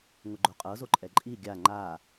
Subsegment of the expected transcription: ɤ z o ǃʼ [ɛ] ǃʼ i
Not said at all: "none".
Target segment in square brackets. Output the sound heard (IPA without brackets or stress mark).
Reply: ɛ